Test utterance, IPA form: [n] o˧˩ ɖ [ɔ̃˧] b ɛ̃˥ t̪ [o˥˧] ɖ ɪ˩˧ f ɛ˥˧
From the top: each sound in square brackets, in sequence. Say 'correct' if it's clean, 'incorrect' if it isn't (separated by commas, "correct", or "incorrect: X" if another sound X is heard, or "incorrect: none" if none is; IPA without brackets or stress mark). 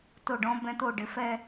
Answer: incorrect: t, correct, correct